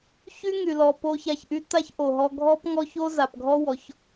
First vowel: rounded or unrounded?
rounded